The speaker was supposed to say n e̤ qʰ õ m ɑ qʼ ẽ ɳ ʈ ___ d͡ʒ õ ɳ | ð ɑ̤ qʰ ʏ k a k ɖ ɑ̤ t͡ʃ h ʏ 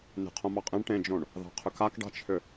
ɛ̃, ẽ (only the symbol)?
ẽ